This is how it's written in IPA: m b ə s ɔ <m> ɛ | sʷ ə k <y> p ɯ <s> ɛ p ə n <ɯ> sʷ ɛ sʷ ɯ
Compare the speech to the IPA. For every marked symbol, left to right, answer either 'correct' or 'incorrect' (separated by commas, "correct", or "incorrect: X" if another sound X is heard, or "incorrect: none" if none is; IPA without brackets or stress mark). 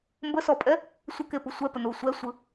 incorrect: pʼ, incorrect: e, incorrect: sʷ, incorrect: u